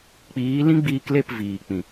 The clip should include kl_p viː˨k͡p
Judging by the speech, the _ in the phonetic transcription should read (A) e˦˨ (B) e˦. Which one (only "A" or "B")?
A